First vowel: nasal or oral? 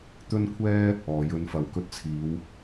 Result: oral